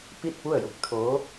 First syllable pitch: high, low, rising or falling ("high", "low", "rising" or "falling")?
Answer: falling